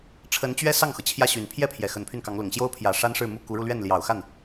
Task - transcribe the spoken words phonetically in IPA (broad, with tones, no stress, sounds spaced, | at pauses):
ʈ͡ʂʰ ə˧˥ n t͡ɕ ɥ ɛ˥ s ɑ˥˩ ŋ x ɤ˩ t͡ɕʰ j ä˥˩ ɕ y˨˩ n pʰ j ɛ˥˩ pʰ j ɛ˨˩ x ə˧˥ n pʰ y˥˩ n k ɑ˧˥ ŋ l ʊ˨˩ ŋ ɕ j o˥ ʊ̯ pʰ j ä˨˩ ʂ a˥ n ʂ ɻ̩˥˧ m u˥˩ k u˧˥ ɻ u˧ l ɥ ɛ˥˩ n l j ɑ˨˩ ʊ̯ x a˥˩ n